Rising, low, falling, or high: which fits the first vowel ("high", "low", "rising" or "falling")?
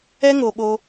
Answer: high